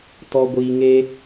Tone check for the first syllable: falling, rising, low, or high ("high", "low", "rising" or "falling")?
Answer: low